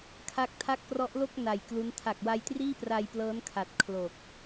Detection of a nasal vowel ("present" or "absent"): absent